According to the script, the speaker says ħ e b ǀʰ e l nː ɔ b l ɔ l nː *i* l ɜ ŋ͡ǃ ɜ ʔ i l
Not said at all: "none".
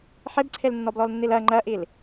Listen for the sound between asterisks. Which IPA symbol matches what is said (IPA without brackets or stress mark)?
i